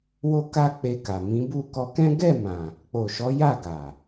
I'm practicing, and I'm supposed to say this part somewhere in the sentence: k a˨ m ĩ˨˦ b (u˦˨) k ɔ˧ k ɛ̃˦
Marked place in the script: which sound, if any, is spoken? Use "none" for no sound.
u˦˨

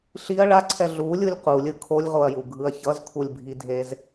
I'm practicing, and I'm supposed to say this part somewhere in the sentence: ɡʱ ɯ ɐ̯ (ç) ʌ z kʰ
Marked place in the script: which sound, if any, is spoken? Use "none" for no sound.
ç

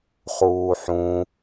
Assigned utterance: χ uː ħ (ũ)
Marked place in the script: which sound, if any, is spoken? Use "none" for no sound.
ũ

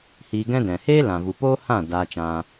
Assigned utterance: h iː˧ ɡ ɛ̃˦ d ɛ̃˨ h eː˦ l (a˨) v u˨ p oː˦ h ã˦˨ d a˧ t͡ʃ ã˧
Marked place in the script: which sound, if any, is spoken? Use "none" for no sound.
ã˨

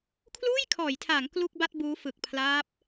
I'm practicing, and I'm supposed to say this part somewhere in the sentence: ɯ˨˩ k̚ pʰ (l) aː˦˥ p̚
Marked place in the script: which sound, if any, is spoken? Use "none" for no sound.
l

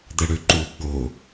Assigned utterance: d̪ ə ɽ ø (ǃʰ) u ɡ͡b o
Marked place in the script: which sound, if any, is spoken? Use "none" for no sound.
ǃ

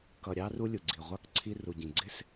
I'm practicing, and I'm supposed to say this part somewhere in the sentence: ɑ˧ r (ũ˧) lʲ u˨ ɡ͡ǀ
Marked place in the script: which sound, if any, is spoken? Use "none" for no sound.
u˧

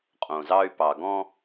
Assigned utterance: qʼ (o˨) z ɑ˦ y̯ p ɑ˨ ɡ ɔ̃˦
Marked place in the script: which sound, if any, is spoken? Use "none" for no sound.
õ˨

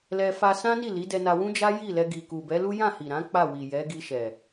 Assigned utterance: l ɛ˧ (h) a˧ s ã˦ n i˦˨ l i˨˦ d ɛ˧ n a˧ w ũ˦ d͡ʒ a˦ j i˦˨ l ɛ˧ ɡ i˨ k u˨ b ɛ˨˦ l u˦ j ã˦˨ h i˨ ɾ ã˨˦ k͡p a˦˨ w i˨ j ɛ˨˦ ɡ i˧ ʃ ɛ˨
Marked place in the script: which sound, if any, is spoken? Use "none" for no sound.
f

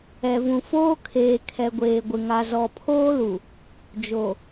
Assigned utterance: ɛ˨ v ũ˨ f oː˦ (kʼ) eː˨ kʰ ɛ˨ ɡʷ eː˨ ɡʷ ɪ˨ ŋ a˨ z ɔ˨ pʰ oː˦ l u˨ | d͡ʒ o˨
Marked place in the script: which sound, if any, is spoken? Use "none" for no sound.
kʰ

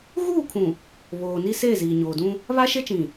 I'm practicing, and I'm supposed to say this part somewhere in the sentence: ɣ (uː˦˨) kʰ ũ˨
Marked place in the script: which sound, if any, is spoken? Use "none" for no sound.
uː˦˨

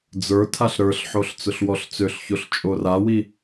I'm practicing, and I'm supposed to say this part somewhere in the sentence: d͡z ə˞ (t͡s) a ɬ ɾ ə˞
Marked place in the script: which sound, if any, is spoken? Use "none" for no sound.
tʰ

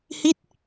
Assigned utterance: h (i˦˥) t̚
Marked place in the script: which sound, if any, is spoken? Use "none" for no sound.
i˦˥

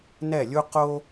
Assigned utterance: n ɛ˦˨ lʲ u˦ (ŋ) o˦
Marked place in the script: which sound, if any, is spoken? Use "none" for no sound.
q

